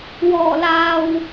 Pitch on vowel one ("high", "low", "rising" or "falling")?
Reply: low